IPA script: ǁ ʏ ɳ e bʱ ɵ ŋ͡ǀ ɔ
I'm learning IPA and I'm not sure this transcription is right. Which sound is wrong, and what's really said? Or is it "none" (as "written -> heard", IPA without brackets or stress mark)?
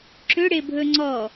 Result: ɳ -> ɽ